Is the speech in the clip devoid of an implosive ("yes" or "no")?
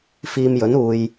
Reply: yes